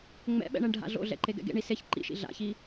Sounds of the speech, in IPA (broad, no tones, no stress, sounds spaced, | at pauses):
ŋ͡m ɛ̰ ɓ ɛ̰ ɳ ɛ ɳ ɖʱ a̰ ɮ o̰ ɮ ɛ̰ ǃ e ɡ ɛ̰ ɡ ḛ ɳ i s e ç ǃ ḭ ʃ ḭ ɮ a̰ ç i